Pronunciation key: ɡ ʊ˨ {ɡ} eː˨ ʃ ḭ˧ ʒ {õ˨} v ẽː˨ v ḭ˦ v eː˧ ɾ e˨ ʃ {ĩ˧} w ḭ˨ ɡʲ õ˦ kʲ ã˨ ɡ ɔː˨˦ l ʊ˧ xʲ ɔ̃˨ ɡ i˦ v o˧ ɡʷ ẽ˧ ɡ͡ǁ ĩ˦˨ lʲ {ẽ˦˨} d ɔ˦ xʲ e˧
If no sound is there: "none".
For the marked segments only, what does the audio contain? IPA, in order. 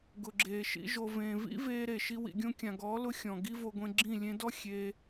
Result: ɡ͡ǁ, o˨, i˧, ẽ˧

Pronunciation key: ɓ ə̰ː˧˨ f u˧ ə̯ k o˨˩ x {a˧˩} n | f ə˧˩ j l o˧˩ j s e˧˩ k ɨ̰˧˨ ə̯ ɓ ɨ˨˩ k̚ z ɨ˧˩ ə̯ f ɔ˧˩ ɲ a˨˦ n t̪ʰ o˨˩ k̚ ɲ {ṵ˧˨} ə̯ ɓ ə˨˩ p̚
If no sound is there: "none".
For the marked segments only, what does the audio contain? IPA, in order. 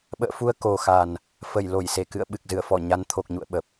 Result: a˨˩, ṵ˧˨

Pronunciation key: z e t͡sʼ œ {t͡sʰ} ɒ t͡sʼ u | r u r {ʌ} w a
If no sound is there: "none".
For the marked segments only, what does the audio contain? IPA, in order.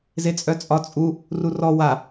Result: t͡sʼ, ɔ

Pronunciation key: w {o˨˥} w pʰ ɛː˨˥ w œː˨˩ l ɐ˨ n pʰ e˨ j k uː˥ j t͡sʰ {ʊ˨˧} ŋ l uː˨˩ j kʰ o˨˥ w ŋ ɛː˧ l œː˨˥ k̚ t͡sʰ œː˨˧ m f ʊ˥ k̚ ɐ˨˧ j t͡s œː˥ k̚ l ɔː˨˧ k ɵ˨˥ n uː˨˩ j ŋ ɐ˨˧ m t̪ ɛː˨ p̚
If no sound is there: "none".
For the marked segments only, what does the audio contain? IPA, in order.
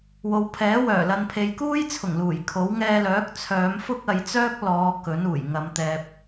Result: o˨, ʊ˨˩

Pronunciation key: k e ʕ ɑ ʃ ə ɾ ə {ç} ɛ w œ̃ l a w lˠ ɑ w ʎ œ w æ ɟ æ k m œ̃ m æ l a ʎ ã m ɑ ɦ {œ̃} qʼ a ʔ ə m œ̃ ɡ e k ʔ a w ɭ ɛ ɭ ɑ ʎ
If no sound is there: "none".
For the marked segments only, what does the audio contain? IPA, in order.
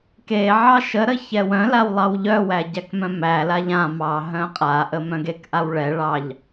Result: ç, œ̃

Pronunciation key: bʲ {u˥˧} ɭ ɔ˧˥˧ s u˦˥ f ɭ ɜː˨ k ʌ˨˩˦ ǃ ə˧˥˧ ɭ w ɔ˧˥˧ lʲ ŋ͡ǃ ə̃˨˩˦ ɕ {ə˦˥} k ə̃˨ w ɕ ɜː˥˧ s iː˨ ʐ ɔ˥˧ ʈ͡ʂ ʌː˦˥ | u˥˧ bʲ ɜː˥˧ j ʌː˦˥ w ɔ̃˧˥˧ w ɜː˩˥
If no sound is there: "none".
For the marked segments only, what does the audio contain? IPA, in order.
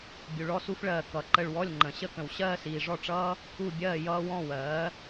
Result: u˨, ə˦˥

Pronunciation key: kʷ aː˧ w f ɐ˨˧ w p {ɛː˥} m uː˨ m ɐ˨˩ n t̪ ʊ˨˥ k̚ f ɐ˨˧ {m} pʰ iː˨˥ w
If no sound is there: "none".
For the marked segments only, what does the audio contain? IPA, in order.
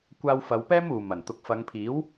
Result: ɛː˥, ŋ

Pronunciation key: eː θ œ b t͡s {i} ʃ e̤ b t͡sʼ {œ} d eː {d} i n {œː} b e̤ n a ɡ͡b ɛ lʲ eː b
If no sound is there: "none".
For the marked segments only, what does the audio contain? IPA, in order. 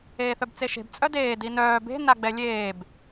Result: e, œ, d, œː

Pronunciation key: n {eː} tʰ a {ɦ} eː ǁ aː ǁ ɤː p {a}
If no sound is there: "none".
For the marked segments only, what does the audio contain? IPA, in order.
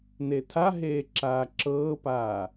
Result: e, ɦ, aː

